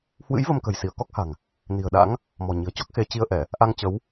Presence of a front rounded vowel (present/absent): absent